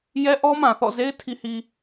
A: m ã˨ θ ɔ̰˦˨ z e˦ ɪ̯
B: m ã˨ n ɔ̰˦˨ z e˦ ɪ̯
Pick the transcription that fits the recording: A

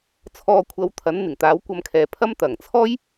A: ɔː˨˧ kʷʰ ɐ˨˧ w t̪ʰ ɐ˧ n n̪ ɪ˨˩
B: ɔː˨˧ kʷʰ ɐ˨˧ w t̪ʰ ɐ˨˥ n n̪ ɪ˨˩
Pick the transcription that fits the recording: B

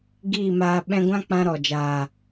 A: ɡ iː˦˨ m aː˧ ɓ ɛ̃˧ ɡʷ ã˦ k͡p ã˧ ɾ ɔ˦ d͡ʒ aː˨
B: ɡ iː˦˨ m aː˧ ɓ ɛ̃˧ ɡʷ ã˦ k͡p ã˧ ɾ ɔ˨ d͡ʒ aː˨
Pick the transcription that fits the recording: B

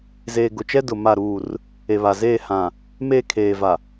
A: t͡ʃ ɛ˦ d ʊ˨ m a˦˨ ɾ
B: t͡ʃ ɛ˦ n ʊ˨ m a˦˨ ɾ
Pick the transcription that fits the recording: A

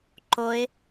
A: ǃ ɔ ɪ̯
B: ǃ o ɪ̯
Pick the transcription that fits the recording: B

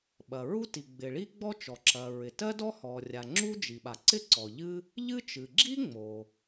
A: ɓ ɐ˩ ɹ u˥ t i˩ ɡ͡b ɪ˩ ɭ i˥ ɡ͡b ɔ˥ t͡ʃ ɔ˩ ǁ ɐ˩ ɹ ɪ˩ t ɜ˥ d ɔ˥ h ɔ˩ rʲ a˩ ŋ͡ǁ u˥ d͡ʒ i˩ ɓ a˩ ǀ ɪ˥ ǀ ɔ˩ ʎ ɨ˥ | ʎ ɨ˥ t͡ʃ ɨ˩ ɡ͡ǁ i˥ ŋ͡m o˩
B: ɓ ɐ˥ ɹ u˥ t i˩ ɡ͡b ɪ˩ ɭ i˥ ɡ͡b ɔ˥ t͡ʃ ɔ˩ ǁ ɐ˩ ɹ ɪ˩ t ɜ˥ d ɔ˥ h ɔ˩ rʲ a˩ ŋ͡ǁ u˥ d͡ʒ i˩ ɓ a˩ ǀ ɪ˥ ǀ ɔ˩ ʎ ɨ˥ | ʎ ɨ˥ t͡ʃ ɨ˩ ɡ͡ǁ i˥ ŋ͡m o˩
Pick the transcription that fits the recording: A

